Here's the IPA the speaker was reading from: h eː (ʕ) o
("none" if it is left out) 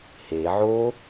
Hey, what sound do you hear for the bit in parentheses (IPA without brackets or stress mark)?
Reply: ʕ